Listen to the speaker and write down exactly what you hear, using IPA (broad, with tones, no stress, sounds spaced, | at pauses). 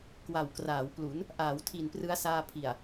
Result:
k w a˨˩ w k r aː˩˦ w p l u˩˦ n | ʔ aː˩˦ w tʰ i˨˩ n p r ɯ˦˥ a̯ s aː˧ pʰ i˨˩ a̯